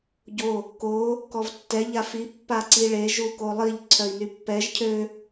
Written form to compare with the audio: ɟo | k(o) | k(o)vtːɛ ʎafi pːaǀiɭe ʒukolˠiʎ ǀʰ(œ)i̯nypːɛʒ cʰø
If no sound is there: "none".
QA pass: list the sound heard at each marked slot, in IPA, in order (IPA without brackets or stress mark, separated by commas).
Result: o, ɔ, œ